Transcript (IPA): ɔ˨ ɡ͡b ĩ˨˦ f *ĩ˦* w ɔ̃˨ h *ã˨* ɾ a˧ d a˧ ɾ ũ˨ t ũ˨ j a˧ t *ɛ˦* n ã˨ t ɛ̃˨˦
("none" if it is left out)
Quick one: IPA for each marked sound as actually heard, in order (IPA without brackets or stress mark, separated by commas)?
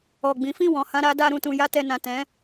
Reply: ĩ˦˨, ã˧, ɛ˨